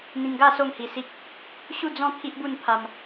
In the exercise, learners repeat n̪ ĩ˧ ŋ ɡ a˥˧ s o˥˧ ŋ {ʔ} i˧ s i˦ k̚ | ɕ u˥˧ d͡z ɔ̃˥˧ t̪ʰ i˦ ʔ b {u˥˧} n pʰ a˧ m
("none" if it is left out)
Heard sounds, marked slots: h, u˥˧

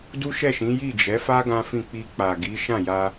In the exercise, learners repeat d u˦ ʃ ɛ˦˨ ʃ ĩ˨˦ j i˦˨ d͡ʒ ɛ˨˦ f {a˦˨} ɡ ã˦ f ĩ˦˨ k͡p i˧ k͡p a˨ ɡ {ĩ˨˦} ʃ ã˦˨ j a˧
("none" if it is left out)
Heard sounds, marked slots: a˦, i˨˦

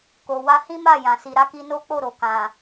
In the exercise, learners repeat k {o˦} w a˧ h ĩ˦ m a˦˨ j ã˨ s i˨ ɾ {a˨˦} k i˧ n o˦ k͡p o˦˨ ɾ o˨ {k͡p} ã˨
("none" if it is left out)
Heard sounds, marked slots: o˨, a˨˦, k

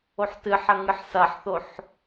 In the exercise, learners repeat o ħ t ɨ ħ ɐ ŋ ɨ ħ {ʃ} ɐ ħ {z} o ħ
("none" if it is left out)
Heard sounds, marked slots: s, θ

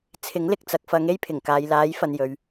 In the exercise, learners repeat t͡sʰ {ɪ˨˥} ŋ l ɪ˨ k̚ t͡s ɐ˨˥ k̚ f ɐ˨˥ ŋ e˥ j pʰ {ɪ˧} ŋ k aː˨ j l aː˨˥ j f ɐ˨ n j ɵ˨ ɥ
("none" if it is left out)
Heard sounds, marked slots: ɪ˨˥, ɪ˨˩

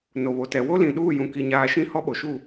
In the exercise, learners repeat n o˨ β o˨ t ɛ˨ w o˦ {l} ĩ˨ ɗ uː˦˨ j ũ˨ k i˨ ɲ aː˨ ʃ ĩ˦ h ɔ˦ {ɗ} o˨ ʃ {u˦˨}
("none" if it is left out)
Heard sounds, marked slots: l, ɓ, u˦˨

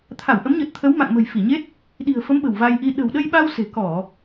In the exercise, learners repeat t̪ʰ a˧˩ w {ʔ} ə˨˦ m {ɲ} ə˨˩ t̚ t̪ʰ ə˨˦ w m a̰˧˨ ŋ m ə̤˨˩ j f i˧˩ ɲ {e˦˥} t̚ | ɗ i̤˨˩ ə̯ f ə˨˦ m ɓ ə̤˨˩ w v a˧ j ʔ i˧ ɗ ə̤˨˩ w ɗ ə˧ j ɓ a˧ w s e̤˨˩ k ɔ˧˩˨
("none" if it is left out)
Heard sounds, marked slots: ʔ, ɲ, e˦˥

